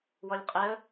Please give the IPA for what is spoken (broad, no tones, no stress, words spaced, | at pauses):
wɔlʲqʼɛə̯